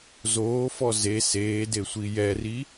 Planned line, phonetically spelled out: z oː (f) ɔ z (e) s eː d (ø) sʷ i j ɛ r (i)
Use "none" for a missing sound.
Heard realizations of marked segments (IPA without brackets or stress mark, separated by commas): f, e, e, i